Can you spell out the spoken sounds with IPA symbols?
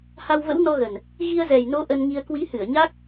h a˧ w v ə̰˧˥ w n ɔ˧ ɣ ə˨˩ n | ɣ i˧ ə̯ z ɛ˨˩ j n o˨˦ ʔ ə˧ n ŋ i˧ ə̯ k w i˨˦ h ɨ˧˩ ə̯ ɲ a˦˥ k̚

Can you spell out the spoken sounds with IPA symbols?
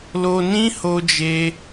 l o˧ n ĩ˦ h o˦ d͡ʒ e˦

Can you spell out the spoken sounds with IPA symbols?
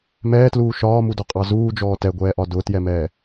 m ɛː t l uː ʃ ɒː m u d ɒ qʼ ɑ z uː d͡ʒ ɔː t ɛ ɡʷ ɛː ʔ ɒ d ʊː t j ɛ m ɛː

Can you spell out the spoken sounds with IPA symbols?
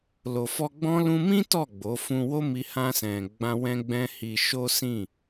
l o˨ f ɔ˧ ɡ͡b ɔ̃˦ l ũ˧ m ĩ˦ t ɔ˦˨ ɡ͡b o˨˦ f ũ˧ w o˦ m i˧ h ã˧ s ɛ̃˨ ɡ͡b ã˧ w ɛ̃˦ ɡ͡b ɛ̃˦ h i˧ ʃ o˦ s ĩ˦˨

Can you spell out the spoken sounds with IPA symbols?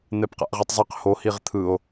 n̪ ɛ p q a̰ ʔ ʁ i tˤ zˤ ɯ q h o h i ʁ t̪ʰ ɯ o̯

